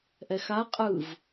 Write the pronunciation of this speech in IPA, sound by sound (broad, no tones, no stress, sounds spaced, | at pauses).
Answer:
ʔ ɛ x a qʼ ɯ v